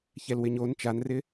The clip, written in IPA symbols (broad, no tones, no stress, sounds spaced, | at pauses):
ç ɛ l w ɪ ɲ o n t͡ʃ a n r ɪ